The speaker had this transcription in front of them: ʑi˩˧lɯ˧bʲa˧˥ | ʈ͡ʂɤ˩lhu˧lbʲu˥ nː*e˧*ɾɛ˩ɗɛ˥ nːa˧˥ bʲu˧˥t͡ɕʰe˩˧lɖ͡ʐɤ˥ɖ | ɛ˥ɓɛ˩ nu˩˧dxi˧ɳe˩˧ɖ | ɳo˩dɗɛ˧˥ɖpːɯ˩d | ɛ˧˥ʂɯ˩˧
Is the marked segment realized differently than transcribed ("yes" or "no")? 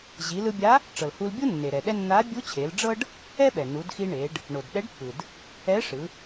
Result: yes